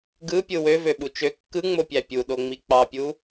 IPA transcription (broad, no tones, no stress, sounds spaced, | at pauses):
ɡ ɯ pʲ ɯ w ø v ø ɓ u t͡ʃ ø kː ɯ ŋ͡m o pʲ æ pʲ u ɗ o ŋ͡m i k͡p ɑ pʲ u